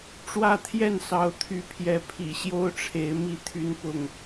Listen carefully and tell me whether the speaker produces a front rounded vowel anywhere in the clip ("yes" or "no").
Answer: yes